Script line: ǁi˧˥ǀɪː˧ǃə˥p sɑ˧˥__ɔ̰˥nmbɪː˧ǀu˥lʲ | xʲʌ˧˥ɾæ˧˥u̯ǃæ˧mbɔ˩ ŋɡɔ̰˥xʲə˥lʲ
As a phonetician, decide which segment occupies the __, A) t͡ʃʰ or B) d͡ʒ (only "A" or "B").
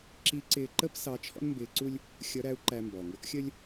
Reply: A